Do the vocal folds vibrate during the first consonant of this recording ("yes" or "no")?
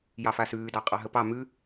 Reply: yes